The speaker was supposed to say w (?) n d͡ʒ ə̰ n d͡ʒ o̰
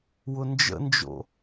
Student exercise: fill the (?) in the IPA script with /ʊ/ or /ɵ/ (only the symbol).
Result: ʊ